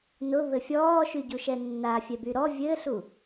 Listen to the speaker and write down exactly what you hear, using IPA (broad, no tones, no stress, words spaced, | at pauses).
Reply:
nʊβɘ fʲɔːʃyɟuʃɛ nːa fʲɛbyɾɔ vʲɘːɬu